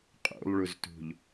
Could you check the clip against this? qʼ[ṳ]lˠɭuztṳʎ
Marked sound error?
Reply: yes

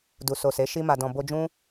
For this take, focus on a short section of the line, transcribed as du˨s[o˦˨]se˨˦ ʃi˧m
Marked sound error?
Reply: yes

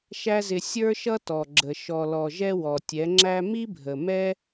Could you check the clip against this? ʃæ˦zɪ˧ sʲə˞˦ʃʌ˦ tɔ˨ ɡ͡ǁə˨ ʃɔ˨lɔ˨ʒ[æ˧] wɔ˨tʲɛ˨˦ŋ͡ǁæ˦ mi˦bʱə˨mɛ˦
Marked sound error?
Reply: yes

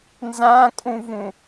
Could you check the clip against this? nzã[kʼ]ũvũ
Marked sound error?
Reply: no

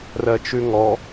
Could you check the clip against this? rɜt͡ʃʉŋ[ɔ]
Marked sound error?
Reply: no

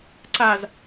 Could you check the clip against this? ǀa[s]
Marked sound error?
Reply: yes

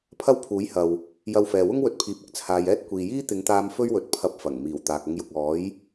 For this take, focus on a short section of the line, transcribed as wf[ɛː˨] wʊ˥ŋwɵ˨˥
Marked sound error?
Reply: no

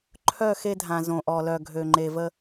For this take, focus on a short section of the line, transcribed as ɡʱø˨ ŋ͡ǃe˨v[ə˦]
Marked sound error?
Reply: no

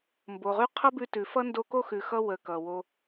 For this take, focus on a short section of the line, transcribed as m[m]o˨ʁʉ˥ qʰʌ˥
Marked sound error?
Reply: yes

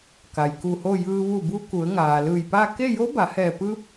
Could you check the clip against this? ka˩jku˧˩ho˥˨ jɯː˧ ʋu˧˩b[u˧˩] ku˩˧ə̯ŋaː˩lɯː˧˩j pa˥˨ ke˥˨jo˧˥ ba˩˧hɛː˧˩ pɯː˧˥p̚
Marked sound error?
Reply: yes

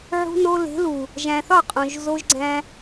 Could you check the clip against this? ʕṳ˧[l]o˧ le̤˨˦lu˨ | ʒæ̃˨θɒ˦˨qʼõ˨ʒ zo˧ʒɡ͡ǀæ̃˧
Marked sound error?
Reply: yes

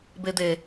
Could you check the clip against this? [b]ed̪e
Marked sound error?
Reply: no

